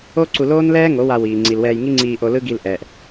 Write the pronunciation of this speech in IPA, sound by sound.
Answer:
o˦ ǀ u˧ l oː˦ n l ɛː˦ ŋ o˨˦ w a˧ w iː˨ ŋ͡ǀ i˨ l w ɛː˧ j ŋ i˦ ŋ͡ǀ iː˧ ʔ o˧ l ɯ˦ ɡ i˧ l ʔ ɛː˨ ʔ

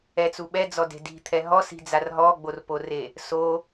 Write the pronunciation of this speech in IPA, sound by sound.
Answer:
ɛ t͡s u ɓ ɛ d͡z ɔ d e̤ d i̤ t̪ʰ ɛ ɦ ɔ s i̤ d͡z a r ɦ ɔ ɡ͡b o r p o r e | s o

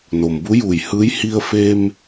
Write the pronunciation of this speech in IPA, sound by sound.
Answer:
n o˩ m b u˧˥ j uː˧˩ j h ɯː˧˥ j h i˧ ə̯ f e˧ m

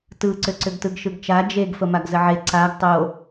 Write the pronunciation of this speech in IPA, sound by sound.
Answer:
t ɯ ǀ ʏ ǀ ʏ ɡ t ɯ ɡ ʃ ɯ ɡ t͡ʃ a d͡ʒ e ɡ f ə m a ɡ z ə ʕ e ǀ a ɡ tˤ o

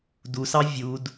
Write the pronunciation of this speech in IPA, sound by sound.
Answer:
d u s ɑ vʲ u d

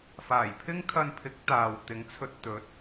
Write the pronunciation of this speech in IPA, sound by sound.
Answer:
f aː˨˩ j pʰ ɪ˥ ŋ kʰ ɐ˧ n pʰ ɪ˨˥ k̚ t̪ aː˨ w t̪ ɪ˨˥ ŋ t͡sʰ ɵ˧ t̚ t̪ ɵ˨˥ t̚

